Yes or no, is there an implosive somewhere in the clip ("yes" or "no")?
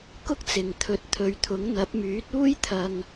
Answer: no